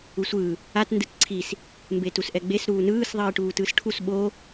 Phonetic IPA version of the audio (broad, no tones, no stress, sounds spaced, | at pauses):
u sʷ ɯː | a t n d ɯ t ǀʰ i s | m b eː t u s ʔ ɛ ɡ͡b e s ɾ uː n ɯː s ðˤ iː ʈ uː t ɯː s ʈʰ u s ɓ o